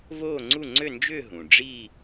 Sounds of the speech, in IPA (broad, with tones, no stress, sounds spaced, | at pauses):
v oː˥˧ ŋ͡ǀ u˥˧ ŋ͡ǀ ø˥˧ n d͡ʒ ʏː˥˧ ɦ ũ˩ ɖ͡ʐ iː˥˧